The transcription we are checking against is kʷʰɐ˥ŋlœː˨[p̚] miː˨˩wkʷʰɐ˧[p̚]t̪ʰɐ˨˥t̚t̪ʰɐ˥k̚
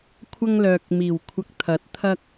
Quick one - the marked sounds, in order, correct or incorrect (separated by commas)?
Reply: incorrect, incorrect